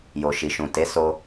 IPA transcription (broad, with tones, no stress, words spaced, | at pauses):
jo˨ʃi˨ʃũ˨ te˨˦so˧